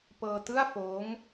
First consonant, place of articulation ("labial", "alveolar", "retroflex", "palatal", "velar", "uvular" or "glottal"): labial